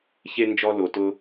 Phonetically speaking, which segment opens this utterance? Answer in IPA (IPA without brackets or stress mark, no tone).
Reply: ç